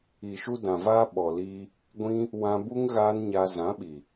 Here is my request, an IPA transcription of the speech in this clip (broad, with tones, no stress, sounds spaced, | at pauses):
i˨ ʃ u˧ d ã˨ v aː˧ ɓ ɔ˨ l iː˧ | ɡʷ ĩ˦ | w ã˧ b u˦ ŋ ɣ aː˦ n ɲ a˧ z ã˨˦ ɓ i˨